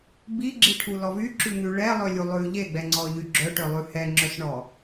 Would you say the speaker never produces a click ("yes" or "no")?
no